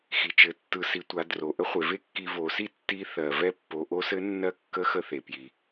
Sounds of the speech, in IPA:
xi˩t͡ʃɘ˩˧tːɯ˩˧ si˩˧tʷa˩˧ dro˩ ʔə˥χʷe˩˧ve˥kːi˧ vo˩˧si˥tːi˧˥ θɜ˩vɛ˧ pːo˩˧ʔo˧˥sɘ˧˥ nːɜ˧˥ kːə˧˥xə˧θe˩ pji˩

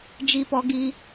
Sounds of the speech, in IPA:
d͡ʒi˦pɔ˦ɡi˦

